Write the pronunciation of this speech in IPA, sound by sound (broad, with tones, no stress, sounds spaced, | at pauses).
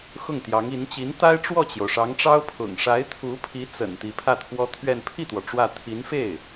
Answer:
x ʊ˥˩ ŋ t̪ j ɑ˧˥ ŋ i˧˥ n t͡ɕ i˧˥ n t̪ a˥ ɪ̯ ʈ͡ʂ w ɔ˥˩ t͡ɕ j o˩ ʊ̯ ʂ ɑ˧˥ ŋ ʈ͡ʂ ɑ˥ ʊ̯ pʰ ʊ̰˨˩ ŋ ʂ a˧˥ ɪ̯ t̪ʰ u˧˥ pʰ i˧˥ t͡s ə̰˨˩ n t̪ i˧˥ pʰ ä˥˩ t̪ʰ w ɔ˥ t̪ʰ ɥ ɛ˥˧ n pʰ i˥˩ t̪ w ɔ˩ ʈ͡ʂ w ä˥˩ t̪ʰ i˧˥ n f e˥˩ ɪ̯